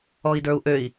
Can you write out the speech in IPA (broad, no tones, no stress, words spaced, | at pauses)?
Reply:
ɔi̯də˞u̯ʔøi̯